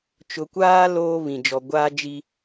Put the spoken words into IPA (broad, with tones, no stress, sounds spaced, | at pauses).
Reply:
t͡ʃ ʊ˨ kʷ aː˦ l oː˦ β ĩ˨ d͡ʒ ɔ˨ ɡʷ aː˦ d͡ʒ i˦